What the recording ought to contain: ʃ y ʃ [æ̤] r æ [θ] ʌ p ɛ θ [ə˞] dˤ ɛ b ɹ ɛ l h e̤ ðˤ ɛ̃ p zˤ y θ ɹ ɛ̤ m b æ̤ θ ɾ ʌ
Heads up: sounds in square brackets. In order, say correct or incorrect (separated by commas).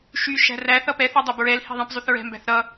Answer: correct, correct, incorrect